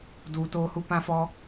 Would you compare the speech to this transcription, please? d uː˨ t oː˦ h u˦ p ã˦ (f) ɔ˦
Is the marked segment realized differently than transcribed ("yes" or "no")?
no